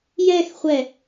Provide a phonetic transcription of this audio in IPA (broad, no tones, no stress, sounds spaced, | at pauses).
j ɛ x χʷ ɛ